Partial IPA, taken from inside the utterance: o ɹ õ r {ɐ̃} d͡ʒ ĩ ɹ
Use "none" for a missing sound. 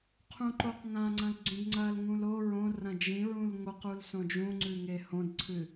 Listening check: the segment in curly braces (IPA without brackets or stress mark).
ɐ̃